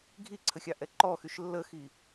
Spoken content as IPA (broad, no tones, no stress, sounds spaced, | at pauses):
ɡʱ i ǀʰ ə xʲ ɑ ʔ ɛ ǃ ɔ x y ʃ lː ə x i